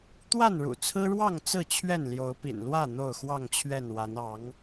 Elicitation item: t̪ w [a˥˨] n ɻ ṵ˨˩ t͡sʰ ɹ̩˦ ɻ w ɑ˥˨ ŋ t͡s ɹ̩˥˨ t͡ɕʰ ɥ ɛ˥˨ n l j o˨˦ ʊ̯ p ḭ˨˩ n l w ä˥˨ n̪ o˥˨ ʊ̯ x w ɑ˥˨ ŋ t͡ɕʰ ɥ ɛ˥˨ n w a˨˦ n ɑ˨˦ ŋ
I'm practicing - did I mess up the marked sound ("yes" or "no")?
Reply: no